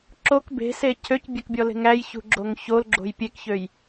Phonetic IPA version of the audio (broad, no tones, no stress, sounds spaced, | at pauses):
ǁ o k b e̤ s e cʰ ø c bʲ ɛ k bʲ ɔ l e̤ ŋ æ j ç ṳ ɡ͡ǁ o ŋ ç o l ɡ͡ǁ o̤ j pʲ e k ç ø j